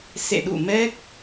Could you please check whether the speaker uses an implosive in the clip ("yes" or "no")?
yes